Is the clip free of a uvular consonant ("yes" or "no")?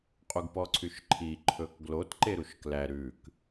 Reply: no